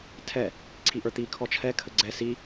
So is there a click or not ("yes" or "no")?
yes